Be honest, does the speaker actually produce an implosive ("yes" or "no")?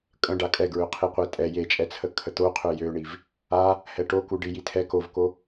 no